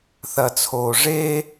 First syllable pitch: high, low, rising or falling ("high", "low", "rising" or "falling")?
low